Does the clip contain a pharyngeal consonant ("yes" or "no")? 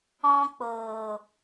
no